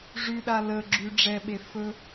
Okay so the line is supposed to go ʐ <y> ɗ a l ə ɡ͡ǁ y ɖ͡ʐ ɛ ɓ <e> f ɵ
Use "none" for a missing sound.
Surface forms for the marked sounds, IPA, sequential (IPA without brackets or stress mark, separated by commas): y, e